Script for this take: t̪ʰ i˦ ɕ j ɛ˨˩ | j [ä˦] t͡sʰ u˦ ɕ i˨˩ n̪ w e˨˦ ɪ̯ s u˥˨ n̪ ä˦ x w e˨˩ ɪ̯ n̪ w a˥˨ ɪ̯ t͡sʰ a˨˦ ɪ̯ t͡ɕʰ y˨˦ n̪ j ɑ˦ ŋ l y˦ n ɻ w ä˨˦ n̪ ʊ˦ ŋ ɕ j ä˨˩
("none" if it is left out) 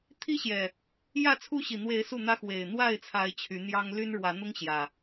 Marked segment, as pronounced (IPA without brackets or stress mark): ä˥˨